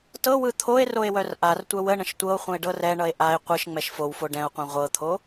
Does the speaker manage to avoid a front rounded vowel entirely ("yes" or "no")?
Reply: no